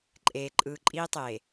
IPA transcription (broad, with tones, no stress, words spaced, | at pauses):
ǃʼeː˨ ǃʼɯː˨ǃʼiː˦tˤeː˨